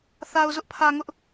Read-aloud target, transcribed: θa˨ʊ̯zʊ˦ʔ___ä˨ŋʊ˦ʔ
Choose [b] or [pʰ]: pʰ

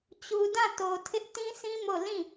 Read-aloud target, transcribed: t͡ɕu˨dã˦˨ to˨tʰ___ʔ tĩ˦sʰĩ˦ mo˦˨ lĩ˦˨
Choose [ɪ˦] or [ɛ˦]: ɪ˦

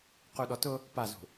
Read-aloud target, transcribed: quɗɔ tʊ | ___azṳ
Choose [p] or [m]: p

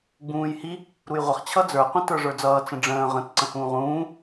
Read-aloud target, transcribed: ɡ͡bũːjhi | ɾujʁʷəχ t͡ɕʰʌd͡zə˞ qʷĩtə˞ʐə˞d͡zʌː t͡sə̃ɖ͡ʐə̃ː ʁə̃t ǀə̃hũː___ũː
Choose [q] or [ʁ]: ʁ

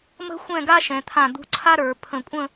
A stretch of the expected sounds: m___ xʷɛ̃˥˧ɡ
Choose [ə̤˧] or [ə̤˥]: ə̤˥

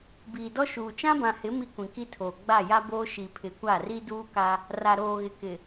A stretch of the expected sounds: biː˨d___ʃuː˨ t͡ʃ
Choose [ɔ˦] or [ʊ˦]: ɔ˦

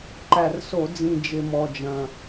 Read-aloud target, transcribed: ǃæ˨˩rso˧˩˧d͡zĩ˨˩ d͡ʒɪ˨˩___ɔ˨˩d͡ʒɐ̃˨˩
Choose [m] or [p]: m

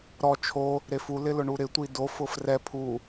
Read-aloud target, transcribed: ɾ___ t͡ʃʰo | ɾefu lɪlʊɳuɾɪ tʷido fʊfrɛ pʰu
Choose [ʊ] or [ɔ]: ɔ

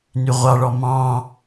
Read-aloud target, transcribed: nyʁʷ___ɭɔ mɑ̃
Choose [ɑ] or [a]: ɑ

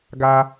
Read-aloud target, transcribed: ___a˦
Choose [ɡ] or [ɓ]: ɡ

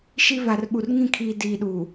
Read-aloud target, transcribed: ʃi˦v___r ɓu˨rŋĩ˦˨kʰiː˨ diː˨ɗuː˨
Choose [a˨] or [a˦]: a˨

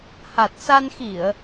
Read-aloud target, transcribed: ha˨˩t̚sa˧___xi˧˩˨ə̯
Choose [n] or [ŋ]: n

